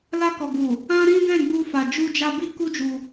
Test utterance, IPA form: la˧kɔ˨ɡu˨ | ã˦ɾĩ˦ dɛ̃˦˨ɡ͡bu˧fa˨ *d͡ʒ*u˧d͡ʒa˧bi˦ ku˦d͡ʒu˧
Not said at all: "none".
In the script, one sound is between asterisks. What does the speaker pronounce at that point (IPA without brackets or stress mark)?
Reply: d͡ʒ